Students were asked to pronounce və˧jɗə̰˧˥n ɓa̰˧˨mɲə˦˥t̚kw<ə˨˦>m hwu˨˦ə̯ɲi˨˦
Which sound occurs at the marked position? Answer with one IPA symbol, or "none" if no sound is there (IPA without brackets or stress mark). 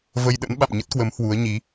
ə˨˦